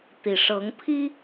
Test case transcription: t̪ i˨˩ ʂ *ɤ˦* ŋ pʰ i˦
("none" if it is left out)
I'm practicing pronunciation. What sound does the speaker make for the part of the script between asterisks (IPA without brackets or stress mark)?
ɤ˨˦